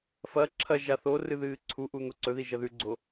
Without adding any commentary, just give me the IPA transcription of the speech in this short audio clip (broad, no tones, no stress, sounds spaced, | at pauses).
f ɐ ǁʰ ɐ ʒ a θ o r ɨ ð ɨː ǀʰ u ʔ u n̪ o ǀ ɵ ð i ʒ ɐ ð ʉ ɡ͡ǀ o